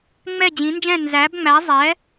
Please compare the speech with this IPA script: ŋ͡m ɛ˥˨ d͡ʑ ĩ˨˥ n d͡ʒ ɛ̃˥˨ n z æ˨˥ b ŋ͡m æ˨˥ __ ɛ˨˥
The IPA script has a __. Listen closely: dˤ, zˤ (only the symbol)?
zˤ